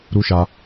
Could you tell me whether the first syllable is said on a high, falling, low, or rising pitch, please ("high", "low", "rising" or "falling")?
high